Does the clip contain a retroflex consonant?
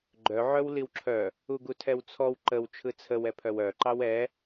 no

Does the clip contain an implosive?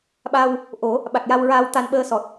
yes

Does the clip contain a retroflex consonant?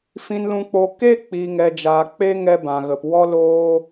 no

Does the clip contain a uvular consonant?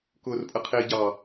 yes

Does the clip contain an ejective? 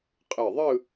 yes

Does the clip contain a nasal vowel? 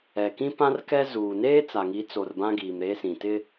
yes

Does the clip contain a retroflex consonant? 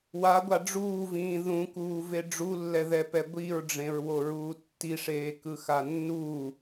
yes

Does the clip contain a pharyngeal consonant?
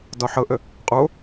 yes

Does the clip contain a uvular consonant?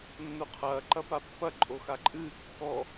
yes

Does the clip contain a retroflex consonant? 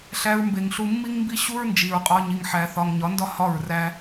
no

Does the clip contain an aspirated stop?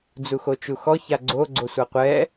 no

